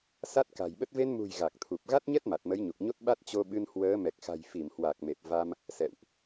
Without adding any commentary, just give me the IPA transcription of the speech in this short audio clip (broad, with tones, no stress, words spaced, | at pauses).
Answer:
sa˦˥t̚ka̤˨˩jɓə˦˥t̚ ve˧nmṳ˨˩j ɣa˨˩k̚t̪ʰu˨˩p̚ ɣa˦˥t̚ɲɛ˦˥t̚ ma˨˩t̚mə˨˦jɲu˨˩k̚ɲo˦˥t̚ ɓa˦˥t̚t͡ɕo˧ɓɨ˧n hwəː˨˦mɛ˨˩k̚xa̤˨˩j fi˧˩mhwa˨˩k̚me˨˩p̚ va˧m | sɛ̰˧˨wʔ